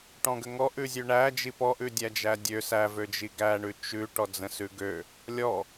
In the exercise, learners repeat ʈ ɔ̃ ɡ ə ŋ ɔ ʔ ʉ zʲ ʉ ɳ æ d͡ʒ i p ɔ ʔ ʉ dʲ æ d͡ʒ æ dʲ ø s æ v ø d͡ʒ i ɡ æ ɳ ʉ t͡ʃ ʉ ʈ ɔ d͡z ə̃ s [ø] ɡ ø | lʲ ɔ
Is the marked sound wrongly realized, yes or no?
yes